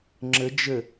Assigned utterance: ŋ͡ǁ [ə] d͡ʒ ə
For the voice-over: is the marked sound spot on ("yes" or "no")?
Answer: yes